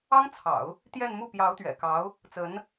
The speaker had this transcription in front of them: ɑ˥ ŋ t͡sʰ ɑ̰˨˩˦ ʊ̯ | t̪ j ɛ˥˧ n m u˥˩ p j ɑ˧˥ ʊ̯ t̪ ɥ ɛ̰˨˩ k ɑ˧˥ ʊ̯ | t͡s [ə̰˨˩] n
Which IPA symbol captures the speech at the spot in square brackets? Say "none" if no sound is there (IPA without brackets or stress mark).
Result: ə˧˥